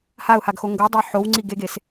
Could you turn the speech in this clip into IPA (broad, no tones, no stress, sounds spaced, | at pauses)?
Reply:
h a ʊ̯ h a ɡ x o ŋ ɡ o dˤ ɛ ħ o w ŋ͡ǀ i ɡ e ɡ e s